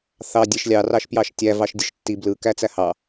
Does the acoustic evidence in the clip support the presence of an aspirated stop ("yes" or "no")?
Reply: no